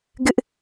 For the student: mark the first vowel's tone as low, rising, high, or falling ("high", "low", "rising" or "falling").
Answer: high